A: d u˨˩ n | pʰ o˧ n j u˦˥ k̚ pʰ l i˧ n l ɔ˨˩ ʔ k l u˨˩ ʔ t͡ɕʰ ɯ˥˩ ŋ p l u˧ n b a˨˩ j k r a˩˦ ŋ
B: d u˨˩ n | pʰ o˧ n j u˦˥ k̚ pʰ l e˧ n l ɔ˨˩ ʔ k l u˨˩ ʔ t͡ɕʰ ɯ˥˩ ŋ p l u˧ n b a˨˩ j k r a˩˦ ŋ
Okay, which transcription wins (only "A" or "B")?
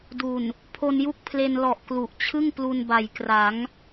B